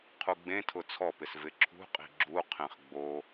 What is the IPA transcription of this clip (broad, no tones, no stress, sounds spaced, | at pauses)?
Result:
qʰ u ɡ͡b ẽ tʰ ʊ t͡sʰ ɔ p ɪ s v ɪ ǁʰ ṳ qʼ i̤ ɡ͡ǁ u qʰ ẽ χ ɡ͡b o